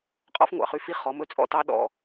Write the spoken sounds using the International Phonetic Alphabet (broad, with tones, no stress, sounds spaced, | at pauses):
qʼ ɔ̰˦ f ŋʷ ɑ̰˨ χ y˦ f i˦ χ ɔ˨˦ m ɵ˦ t͡sʼ ɔ̰˦ t ɑ˦ ɗ ɔ̰˨